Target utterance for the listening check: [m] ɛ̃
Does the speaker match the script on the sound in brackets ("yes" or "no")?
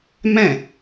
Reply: yes